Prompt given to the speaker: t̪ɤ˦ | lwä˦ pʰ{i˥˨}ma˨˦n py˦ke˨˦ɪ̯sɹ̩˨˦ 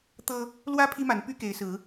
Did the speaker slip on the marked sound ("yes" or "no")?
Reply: yes